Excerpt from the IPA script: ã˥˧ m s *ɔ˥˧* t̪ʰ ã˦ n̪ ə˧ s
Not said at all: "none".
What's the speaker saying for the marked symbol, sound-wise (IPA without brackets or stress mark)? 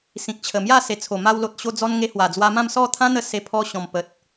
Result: ɔ˥˧